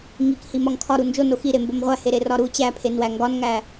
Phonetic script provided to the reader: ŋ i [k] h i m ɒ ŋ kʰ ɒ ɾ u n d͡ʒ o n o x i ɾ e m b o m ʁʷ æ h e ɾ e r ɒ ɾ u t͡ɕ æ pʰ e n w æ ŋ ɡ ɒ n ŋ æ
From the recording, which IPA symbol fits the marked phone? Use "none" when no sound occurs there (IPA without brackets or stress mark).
k